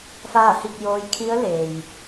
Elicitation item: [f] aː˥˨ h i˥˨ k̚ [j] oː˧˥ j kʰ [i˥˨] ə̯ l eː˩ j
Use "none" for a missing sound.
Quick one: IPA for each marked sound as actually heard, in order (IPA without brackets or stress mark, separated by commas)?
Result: f, j, i˧˥